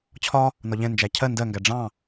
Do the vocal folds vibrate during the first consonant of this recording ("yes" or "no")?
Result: no